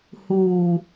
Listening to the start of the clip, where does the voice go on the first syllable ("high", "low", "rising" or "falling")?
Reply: low